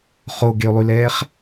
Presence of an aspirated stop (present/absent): absent